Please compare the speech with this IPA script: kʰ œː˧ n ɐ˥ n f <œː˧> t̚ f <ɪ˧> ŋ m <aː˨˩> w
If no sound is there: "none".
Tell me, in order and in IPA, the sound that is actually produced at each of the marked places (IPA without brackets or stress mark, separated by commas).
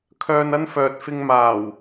œː˨, ɪ˧, aː˨˩